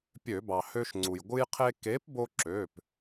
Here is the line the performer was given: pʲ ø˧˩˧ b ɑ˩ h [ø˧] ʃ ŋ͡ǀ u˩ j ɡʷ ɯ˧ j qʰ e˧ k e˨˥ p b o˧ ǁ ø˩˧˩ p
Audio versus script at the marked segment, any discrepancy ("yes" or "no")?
no